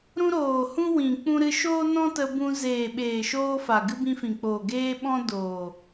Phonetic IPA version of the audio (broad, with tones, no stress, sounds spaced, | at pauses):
ɾ ũ˧ ɾ oː˨ h ũ˧ w ĩ˨ k͡p ũ˧ ɾ ɨ˧ ʃ oː˦ n ɔ̃˦ t ə˧ b ũ˧ z eː˨ ɓ eː˨ ʃ oː˧ f a˨ ɡ ɨ˦ b ĩ˧ f ĩ˨ k͡p oː˨ ɡ eː˦ ɓ ɔ̃˦ d oː˨